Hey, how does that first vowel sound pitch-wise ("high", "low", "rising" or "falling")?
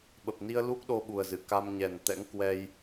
low